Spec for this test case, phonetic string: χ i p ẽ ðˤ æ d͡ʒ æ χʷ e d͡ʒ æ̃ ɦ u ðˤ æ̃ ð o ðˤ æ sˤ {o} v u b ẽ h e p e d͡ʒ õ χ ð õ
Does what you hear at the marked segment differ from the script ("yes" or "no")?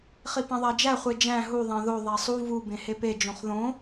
yes